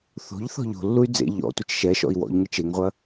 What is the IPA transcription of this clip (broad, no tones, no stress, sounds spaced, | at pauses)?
θ o̤ ʎ θ ɔ̤ ʎ o̤ lː u y̯ d͡z ḛ ʎ ɔ̰ tʷ ɘ t͡ʃ ʃ ɛ ʃ ɔ̰ i̯ w ɔ̰ ʎ ŋ e t͡ʃ e ŋ ʁʷ ɐ